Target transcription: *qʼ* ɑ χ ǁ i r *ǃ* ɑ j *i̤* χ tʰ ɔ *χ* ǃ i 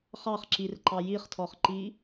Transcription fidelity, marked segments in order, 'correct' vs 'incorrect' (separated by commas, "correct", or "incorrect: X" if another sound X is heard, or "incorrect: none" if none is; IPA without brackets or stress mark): incorrect: χ, correct, incorrect: i, correct